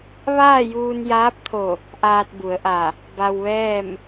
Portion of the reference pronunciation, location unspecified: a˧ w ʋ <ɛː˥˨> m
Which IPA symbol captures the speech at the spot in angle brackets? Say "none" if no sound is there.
ɛː˥˨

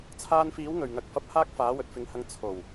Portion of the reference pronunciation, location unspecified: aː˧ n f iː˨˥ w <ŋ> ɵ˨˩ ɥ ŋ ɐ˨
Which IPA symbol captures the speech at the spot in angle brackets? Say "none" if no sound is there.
ŋ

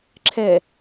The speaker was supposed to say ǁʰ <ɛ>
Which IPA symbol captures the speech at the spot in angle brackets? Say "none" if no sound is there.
ɛ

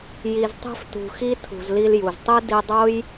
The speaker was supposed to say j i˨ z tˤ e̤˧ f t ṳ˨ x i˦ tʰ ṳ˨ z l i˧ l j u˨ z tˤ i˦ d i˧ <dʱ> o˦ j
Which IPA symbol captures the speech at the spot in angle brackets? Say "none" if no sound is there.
dˤ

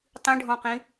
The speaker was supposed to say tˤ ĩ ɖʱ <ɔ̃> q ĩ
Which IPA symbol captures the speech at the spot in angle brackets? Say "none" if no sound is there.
ɔ̃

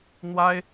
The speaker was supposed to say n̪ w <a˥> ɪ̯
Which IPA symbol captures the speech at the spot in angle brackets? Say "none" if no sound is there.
a˥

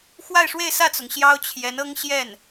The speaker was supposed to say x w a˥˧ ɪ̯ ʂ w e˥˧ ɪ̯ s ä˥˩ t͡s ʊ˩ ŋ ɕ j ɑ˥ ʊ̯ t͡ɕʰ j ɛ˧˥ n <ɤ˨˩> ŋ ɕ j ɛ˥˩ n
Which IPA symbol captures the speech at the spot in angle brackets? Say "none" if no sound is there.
ɤ˥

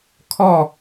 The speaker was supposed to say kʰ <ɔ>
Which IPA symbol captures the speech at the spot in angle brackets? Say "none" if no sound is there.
ɔ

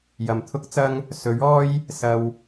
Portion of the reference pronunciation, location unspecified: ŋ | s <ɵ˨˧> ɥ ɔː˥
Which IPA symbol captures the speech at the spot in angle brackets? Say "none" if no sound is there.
ɵ˨˥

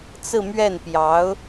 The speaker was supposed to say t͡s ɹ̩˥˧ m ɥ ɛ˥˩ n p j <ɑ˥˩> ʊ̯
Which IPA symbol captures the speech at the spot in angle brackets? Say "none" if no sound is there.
ɑ˧˥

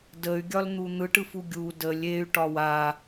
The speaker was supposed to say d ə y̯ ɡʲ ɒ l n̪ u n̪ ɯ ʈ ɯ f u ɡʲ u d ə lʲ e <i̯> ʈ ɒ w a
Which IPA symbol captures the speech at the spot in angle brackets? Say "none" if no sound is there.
y̯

